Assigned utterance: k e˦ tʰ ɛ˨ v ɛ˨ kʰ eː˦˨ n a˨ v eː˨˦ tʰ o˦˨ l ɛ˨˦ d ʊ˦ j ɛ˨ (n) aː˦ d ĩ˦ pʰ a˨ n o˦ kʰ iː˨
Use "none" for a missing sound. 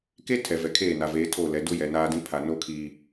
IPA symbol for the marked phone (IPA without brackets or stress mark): n